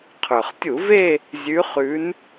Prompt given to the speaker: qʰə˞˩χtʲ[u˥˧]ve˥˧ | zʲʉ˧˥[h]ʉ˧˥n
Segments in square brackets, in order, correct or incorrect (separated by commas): incorrect, incorrect